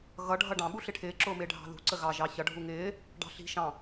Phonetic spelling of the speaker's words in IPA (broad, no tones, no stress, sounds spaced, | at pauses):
ɣ ʌ ɖʱ ʌ ɖ ɑ̃ ɓ u ɬ ɪ ʈʰ ɪː ǁ ʊː m ɪː ɖʱ ɑ̤ ð ṳ ǀ ə ɣ ɑ ʒ ɑ ç ʌ ɖʱ u ŋ ɪː | ɖ ɑ̤ ɬ i̤ ʃ ɑ̃